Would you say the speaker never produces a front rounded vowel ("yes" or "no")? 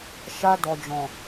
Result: yes